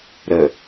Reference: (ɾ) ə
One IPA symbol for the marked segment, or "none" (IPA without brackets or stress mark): ɾ